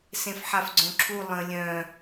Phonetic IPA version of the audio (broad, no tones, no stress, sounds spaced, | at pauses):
s ẽ f ħ a f ɡ͡ǀ õ ǁʰ u lˠ ə̃ lʲ œ̃